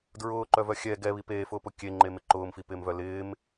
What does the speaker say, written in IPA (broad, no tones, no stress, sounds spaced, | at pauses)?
d ɹ ʊː ǃ œ v œ xʲ ɛ ɡ ɛ β i p eː f ʊː p ʊ kʲ e ŋ͡ǃ e m ɪ ǃ ʊː m f i p ɪː m v œ l ɪː m